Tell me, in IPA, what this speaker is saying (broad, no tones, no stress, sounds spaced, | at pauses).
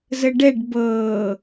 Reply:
z ə ɖ ɛ ɖ b ɤː